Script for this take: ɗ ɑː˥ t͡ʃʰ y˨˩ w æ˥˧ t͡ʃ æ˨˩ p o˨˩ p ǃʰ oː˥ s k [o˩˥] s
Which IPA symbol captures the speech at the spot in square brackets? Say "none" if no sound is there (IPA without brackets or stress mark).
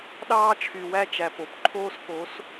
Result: o˩˥